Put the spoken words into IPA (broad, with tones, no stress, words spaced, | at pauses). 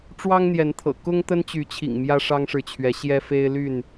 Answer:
ʈ͡ʂwɑ˦ŋn̪jɛ˨˦nt̪ʰɤ̰˨˩ kʊ˦ŋ t̪ə˦nt͡ɕy˨˦t͡ɕʰḭ˨˩ŋ mjä˦ʂɑ˦ŋʂɻ̩˨t͡ɕʰɥɛ˨˦ ɕjɛ˦fe˦ɪ̯ly˥˨n